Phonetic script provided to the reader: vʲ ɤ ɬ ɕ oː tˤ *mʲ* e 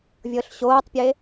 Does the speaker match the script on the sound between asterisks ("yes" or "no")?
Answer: no